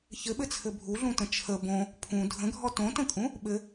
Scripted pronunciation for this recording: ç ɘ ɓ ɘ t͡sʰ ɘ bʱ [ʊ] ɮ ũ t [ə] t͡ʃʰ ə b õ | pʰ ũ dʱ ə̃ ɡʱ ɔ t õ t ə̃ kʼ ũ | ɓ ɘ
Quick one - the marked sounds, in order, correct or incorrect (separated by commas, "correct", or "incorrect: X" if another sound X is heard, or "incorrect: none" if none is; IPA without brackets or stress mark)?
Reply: incorrect: u, incorrect: ə̃